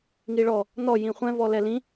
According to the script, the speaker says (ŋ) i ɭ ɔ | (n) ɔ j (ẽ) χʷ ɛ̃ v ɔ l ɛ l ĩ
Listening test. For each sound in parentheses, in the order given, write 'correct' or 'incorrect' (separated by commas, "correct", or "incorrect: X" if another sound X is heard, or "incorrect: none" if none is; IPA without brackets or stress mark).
correct, correct, incorrect: ĩ